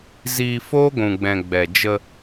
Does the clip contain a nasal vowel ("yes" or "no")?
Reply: yes